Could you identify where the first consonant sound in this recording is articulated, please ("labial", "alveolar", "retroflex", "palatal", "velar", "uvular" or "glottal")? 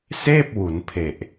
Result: alveolar